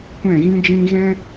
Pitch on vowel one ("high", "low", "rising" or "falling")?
falling